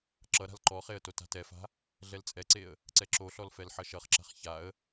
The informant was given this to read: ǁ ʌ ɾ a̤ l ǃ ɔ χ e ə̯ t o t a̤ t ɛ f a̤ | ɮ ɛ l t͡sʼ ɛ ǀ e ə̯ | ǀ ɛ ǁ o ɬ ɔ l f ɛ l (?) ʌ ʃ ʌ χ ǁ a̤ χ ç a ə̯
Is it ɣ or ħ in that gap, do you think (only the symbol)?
ħ